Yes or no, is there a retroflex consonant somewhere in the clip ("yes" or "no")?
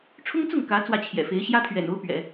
yes